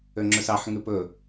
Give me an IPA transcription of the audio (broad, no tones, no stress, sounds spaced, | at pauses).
ø ŋ͡ǁ ɵ s ɑ ħ ŋ ʉ p ɵ